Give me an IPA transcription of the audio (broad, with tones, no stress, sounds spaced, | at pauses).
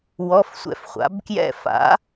w ɔ˧˥˧ f sʷ ɛ̰˧˩ f χʷ a̰˩˥ b k j ɛ̰˥˩ f a̰˩˥